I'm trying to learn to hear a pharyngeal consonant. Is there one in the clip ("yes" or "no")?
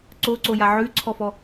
yes